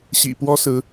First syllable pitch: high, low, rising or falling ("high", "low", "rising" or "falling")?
low